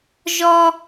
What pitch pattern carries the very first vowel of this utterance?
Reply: high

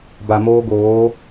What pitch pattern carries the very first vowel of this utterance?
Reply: low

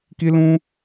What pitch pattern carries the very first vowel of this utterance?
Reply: high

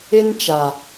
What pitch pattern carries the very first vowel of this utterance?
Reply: high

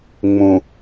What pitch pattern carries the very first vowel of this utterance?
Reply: low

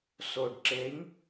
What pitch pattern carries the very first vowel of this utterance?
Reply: low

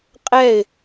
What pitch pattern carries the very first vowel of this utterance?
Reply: falling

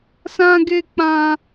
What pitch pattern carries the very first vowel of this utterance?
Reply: high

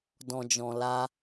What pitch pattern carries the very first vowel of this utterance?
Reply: low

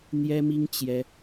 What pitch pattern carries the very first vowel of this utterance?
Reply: high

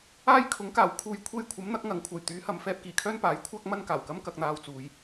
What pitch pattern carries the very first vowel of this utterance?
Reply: high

